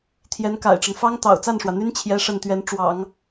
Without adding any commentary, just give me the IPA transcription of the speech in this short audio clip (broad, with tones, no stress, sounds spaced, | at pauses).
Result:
t̪ʰ j ɛ˧˥ n k a̰˨˩ ɪ̯ ʈ͡ʂ ə˦ n f ɑ˥ ŋ t̪ ɑ̰˨˩ ʊ̯ t͡s a˥˩ n ʂ w ä˩ n̪ y˥ n t͡ɕʰ j ɛ˥ ʂ ə˥˩ n t̪ ɥ ɛ˧˥ n ʈ͡ʂ w ɑ̰˨˩˦ ŋ